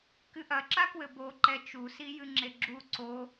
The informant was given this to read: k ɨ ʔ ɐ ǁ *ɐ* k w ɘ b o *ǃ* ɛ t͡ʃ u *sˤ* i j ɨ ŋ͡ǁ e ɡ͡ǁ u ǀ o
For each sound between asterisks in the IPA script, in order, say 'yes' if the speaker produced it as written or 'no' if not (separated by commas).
no, yes, no